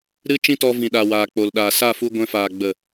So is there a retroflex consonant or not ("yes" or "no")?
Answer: no